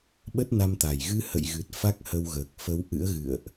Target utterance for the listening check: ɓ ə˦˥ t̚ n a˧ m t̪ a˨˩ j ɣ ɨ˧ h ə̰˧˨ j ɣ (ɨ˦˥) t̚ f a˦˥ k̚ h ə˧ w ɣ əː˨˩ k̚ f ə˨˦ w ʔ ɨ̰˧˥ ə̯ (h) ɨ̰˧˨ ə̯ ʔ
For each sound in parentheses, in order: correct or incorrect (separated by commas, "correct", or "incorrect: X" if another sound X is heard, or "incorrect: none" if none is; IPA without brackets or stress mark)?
incorrect: ɨ˨˩, incorrect: ɣ